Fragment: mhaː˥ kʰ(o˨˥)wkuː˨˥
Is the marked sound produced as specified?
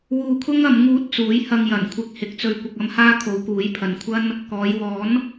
no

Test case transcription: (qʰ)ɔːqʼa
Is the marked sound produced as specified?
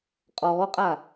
no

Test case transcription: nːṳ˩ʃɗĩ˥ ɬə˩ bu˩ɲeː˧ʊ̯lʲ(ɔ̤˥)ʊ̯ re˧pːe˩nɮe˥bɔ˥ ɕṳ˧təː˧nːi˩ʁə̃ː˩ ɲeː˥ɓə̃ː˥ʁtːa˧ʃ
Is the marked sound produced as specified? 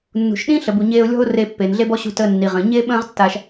yes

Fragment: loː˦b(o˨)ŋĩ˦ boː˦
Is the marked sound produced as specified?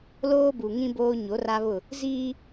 no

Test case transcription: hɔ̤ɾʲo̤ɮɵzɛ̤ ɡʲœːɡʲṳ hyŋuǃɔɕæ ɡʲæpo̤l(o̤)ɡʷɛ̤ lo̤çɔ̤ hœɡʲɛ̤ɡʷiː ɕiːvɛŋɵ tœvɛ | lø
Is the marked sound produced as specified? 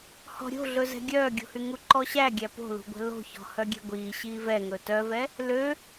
no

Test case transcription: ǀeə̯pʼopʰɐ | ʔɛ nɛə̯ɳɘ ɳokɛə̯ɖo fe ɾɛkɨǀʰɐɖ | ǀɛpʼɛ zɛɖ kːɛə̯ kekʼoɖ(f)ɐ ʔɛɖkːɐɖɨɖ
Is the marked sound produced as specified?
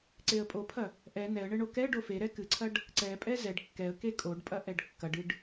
no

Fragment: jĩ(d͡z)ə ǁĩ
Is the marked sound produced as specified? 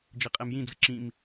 yes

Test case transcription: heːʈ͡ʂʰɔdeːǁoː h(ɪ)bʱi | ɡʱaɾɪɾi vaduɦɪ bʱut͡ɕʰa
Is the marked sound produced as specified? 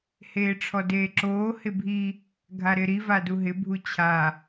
yes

